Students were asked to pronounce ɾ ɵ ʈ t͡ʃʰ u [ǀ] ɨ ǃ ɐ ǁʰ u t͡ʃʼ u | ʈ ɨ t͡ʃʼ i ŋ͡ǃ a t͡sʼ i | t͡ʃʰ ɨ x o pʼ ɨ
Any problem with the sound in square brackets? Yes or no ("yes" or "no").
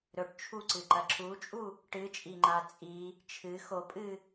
no